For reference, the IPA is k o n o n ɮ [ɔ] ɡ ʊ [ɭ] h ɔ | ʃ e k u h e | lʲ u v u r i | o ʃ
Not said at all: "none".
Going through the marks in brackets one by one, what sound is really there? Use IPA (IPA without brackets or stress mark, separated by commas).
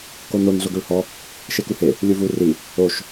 ʊ, ɭ